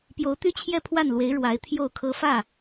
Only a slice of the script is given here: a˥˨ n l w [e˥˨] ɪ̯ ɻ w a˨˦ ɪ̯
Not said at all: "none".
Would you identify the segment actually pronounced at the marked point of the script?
e˨˦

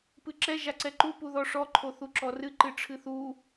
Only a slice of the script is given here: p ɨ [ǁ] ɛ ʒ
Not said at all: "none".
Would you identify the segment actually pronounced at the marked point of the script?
ǁ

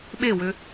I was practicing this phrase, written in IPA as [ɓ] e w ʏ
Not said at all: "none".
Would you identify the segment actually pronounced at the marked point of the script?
ɓ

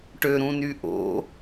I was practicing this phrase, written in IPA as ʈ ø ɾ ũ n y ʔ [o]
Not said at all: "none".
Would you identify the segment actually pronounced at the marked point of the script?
o̰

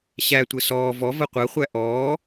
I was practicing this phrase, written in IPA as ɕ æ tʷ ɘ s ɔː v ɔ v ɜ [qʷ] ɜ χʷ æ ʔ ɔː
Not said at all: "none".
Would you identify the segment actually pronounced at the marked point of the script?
qʷ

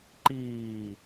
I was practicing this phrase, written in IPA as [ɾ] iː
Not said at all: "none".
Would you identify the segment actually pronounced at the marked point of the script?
ǃ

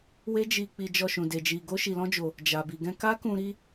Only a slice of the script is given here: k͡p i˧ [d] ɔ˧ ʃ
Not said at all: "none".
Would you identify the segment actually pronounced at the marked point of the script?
d͡ʒ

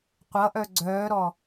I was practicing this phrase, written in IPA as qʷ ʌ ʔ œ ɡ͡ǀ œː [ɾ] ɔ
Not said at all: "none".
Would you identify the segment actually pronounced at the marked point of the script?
ɾ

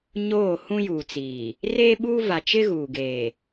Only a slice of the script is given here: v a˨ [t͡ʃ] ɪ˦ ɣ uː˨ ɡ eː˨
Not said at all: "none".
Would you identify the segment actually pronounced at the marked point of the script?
t͡ʃ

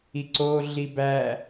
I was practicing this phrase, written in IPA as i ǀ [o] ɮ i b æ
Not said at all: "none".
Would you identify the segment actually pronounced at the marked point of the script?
o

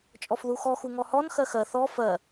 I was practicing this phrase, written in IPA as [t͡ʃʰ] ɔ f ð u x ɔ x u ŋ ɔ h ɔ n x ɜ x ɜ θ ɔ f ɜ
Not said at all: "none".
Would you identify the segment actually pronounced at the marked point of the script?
t͡ʃʼ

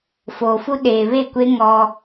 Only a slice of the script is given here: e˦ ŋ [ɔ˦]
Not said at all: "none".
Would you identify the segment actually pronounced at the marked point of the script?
ɔ˦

